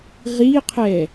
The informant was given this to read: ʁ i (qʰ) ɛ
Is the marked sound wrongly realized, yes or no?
no